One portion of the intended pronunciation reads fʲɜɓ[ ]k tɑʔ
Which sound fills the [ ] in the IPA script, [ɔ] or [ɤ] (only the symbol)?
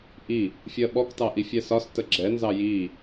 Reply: ɔ